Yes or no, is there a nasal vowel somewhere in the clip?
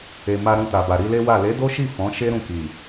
yes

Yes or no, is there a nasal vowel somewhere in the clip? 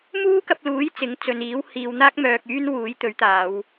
no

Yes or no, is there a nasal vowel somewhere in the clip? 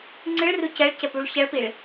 no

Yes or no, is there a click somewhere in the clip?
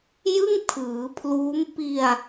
no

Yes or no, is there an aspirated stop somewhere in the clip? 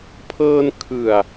yes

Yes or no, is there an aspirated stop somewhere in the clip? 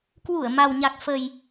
no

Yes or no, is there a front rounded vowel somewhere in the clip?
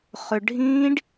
yes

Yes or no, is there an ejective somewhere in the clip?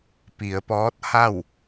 no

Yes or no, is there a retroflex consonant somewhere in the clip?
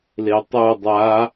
no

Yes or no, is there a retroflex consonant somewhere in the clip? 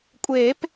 no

